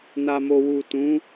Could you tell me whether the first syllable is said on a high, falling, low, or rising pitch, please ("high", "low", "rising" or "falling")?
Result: low